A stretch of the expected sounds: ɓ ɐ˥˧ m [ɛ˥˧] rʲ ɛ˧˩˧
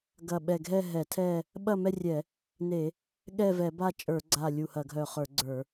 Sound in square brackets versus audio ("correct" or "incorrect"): correct